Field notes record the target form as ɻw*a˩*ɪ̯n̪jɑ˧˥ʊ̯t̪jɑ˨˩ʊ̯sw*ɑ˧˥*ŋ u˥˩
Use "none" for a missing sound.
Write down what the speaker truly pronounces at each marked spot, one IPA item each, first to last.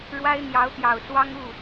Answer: a˥, ɑ˥

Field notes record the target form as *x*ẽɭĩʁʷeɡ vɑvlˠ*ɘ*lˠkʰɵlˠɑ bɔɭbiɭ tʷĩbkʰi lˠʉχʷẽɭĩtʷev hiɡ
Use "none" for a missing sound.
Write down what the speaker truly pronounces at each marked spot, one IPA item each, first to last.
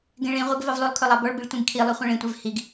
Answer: ɡ, ʉ

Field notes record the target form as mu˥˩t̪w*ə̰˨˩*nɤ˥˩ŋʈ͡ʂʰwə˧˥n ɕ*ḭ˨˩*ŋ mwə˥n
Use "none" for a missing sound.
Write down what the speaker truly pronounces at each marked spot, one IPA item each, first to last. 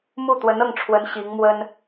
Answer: ə˧˥, i˧˥

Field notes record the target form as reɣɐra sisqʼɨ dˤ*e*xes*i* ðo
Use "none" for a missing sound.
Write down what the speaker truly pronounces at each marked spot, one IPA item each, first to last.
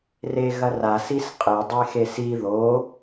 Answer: e, i

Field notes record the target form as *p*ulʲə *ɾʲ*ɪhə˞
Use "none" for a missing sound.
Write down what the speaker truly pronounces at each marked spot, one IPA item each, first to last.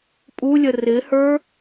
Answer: pʼ, r

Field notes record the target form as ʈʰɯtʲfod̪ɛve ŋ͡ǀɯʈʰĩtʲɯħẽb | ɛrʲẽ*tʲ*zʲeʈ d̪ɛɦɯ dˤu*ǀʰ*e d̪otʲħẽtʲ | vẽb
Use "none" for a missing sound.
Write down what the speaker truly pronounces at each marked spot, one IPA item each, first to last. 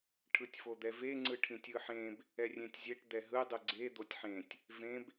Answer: tʲ, ɡ͡ǀ

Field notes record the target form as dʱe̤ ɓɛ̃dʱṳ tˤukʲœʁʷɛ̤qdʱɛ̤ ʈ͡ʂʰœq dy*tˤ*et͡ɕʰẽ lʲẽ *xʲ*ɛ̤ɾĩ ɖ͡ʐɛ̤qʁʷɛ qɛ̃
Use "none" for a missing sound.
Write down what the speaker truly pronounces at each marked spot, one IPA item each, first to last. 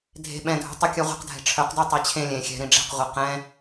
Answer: tˤ, xʲ

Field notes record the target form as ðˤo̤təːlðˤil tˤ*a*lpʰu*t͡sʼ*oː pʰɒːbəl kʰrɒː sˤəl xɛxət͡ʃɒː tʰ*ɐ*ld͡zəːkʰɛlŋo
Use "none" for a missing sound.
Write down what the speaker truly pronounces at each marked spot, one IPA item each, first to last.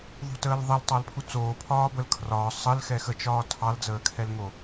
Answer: ɑ, t͡s, ɑ

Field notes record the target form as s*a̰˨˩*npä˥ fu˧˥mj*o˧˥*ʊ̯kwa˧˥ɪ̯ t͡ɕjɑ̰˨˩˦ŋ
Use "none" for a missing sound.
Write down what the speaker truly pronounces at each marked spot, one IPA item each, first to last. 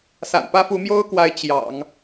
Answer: a̰˨˩, o˥

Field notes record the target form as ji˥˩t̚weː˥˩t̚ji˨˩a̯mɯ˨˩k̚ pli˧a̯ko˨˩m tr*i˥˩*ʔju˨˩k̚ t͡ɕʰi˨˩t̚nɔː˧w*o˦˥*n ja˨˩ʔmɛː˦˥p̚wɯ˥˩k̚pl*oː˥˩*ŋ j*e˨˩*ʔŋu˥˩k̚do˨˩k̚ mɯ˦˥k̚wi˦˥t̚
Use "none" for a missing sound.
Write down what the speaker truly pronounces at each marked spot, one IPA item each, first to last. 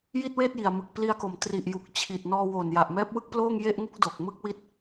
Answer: i˨˩, o˨˩, oː˥˩, e˥˩

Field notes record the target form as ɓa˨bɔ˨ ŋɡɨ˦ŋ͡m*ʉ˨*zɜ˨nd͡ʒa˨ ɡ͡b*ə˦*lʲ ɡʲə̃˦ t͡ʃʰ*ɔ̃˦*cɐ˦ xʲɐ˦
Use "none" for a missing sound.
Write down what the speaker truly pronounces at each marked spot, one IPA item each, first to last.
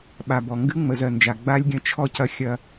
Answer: ə˨, a˦, ɔ˦

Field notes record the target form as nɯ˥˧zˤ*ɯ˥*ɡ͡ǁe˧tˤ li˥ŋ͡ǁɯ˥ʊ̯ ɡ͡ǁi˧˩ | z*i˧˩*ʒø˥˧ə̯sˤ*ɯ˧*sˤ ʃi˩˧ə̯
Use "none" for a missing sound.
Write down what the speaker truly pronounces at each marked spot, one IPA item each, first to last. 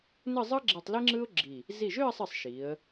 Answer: ɯ˥, i˧˩, ɯ˧˩

